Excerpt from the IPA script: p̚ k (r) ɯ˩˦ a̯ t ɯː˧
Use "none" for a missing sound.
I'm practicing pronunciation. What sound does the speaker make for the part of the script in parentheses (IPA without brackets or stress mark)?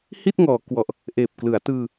l